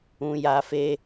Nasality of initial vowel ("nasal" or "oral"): nasal